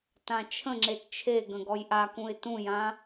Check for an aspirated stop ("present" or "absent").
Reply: present